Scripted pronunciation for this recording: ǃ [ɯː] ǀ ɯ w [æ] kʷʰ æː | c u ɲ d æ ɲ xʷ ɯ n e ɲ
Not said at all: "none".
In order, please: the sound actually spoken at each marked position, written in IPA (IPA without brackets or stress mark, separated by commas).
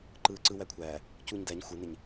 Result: ɯː, æ